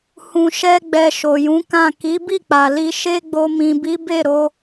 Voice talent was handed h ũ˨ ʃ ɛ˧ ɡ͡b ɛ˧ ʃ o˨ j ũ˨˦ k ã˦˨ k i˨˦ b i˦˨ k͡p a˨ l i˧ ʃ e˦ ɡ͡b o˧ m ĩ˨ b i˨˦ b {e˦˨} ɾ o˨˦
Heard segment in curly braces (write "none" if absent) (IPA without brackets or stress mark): e˦˨